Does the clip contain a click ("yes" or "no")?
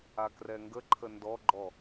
yes